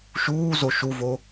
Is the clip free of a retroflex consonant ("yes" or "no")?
yes